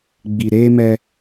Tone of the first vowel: low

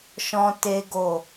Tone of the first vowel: high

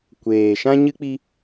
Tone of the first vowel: low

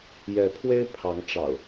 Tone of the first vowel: rising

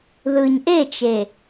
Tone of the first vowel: low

